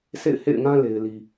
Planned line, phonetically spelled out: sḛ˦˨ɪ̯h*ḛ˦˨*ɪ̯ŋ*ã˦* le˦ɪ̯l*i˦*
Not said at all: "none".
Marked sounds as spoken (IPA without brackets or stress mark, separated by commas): ḛ˦˨, ã˦, i˦